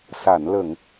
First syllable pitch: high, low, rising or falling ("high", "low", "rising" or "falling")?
low